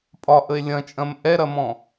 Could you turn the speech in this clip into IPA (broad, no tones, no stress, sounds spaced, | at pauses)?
pʼ ɒ ʔ ə e̯ lʲ ɐ̃ t͡ʃʼ ɐ̃ m ʔ ɛ ɾ ɐ m ɔ̃